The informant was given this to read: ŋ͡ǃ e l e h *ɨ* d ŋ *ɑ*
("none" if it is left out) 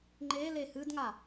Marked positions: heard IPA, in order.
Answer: ɨ, a

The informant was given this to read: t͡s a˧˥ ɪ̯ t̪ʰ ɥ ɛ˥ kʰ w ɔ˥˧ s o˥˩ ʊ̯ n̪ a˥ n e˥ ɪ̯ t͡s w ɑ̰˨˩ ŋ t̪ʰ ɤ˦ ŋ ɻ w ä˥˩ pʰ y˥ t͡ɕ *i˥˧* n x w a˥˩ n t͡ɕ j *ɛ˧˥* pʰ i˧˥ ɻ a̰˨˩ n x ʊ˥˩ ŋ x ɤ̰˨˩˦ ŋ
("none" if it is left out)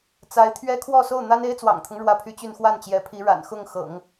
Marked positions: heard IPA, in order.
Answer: y˥˧, ɛ˧˥

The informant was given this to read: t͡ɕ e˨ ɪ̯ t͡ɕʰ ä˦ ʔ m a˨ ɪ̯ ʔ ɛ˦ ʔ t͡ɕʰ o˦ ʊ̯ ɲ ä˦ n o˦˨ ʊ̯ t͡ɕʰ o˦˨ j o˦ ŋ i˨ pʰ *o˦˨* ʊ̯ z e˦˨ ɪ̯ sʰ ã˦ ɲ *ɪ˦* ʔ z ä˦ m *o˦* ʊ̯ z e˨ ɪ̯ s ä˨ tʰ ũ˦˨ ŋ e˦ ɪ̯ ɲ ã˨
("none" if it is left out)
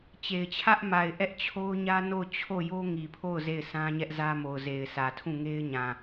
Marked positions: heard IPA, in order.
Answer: o˦˨, ɛ˦, o˨

